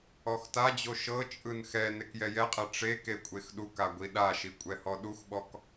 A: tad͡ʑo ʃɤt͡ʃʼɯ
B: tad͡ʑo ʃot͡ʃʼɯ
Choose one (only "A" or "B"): A